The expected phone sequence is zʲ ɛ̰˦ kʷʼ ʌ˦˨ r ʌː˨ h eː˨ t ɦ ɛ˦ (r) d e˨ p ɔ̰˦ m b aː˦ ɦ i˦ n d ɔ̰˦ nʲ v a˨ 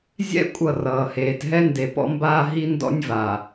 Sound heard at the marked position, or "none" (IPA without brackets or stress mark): n